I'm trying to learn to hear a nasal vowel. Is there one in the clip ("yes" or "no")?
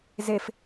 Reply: no